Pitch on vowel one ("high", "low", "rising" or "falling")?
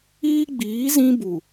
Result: high